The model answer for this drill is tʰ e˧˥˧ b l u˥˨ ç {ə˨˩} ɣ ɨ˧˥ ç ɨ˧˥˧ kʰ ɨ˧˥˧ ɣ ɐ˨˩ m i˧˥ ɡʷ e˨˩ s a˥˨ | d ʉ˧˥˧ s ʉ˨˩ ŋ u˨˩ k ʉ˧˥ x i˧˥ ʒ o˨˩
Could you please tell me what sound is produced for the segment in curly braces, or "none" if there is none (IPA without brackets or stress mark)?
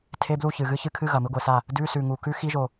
ɨ˨˩